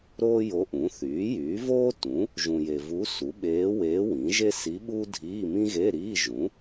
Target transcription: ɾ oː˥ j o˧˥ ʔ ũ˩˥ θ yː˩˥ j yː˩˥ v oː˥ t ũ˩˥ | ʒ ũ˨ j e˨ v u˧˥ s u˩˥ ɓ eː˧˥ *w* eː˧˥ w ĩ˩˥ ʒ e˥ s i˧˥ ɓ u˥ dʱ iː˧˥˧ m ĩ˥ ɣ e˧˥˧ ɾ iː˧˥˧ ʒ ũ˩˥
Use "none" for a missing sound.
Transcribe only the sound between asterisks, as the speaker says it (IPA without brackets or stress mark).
w